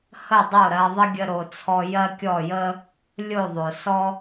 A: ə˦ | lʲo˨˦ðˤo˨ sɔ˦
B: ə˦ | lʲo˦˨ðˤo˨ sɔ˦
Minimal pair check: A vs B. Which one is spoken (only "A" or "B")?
B